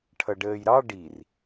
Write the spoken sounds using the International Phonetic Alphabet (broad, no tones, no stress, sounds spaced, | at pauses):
ʈʰ ʌ ɖ əː j ɾ ɑ ɖ i r